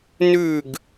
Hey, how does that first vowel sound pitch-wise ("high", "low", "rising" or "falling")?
falling